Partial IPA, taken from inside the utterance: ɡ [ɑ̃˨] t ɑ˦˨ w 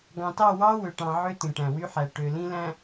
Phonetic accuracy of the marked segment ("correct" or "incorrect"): correct